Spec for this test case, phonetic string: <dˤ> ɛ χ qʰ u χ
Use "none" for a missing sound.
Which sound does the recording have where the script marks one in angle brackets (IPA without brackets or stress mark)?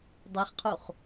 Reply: dˤ